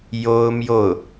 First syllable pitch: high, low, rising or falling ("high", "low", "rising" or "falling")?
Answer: high